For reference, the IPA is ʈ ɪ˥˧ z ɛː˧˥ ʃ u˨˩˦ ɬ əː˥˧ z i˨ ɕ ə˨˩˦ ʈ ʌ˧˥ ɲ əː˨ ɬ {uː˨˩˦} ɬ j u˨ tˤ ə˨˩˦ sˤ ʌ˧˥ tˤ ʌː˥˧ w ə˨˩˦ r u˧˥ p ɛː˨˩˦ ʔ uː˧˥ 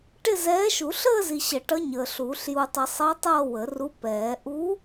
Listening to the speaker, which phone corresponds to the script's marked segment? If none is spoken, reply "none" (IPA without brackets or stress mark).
uː˨˩˦